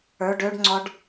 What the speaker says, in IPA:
ə˞ ɖ ø ɖ ŋ͡ǀ ɔ ɖ

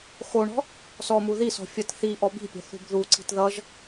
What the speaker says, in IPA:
x o ɳ ɔ̤ | s ɔ m u ð i s ɔ̤ fʲ ʌ t θ i ʔ ɔ b i̤ pʲ ɔ̤ θ ṳ b ð u ǀ i̤ t ð ʌ ʒ

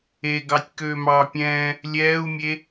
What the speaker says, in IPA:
e ɡ ɑ tʲ k øː m ɑː pʲ ɛ̃ː | lʲ ɛː u̯ mʲ e

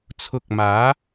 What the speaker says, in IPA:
t͡sʰ ʊ˧ k̚ m aː˨˥

